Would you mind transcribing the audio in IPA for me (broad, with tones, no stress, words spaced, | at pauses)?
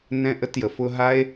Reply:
nɛ̃˧ʔə˧tjə˨ fʊ˧ɦa˦e̯